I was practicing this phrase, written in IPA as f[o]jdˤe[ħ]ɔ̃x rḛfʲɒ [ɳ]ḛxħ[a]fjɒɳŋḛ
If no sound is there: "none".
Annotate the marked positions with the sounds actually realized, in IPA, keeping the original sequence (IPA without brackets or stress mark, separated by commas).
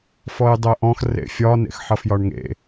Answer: ɔ, ʔ, n, ʌ